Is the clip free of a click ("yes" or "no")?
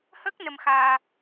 yes